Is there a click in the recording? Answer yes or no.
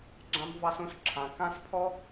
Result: yes